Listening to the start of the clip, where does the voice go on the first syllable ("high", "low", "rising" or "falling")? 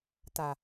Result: low